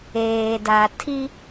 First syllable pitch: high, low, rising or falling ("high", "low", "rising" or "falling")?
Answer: low